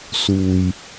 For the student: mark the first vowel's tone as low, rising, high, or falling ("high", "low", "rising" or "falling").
low